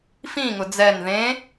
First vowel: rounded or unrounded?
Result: unrounded